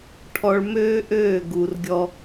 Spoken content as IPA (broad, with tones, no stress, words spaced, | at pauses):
ʈʰɔ˧ɭmøː˦ ʔøː˦˨ɡu˨rɡʲɔ˧